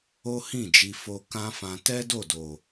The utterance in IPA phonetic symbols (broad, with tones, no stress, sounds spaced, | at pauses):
o˦ h ĩ˦˨ d͡ʒ i˧ f o˧ k ã˦ f ã˧ t ɛ˦ d o˦˨ d o˨